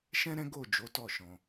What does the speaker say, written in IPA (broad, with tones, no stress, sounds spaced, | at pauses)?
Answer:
ʃ ɛ̃˦ ɾ ɛ̃˦ ɡ o˦˨ d͡ʒ o˨˦ t ɔ˦˨ ʃ ɔ̃˧